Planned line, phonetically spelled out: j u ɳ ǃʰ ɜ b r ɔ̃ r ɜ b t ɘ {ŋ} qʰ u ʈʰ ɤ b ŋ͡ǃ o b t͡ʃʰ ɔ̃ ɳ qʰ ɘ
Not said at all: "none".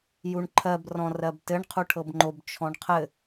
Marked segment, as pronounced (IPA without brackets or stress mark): ɳ